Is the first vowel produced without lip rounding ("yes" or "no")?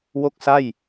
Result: no